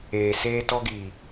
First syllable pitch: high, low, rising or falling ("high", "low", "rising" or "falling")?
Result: low